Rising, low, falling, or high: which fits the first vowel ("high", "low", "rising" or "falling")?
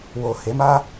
low